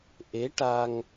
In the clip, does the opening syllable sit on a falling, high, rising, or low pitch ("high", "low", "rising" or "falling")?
rising